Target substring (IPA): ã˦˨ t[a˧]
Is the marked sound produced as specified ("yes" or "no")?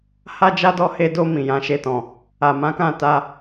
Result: yes